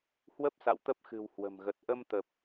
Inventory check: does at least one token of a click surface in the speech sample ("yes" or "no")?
no